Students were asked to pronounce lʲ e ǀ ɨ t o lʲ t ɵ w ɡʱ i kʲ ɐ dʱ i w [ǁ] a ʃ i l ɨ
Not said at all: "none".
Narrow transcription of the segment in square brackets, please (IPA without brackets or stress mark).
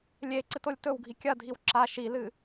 ǁ